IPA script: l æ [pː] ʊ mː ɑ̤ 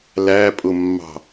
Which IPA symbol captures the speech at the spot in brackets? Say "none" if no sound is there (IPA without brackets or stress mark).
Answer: pʼ